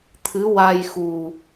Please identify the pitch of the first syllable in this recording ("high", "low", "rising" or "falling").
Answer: rising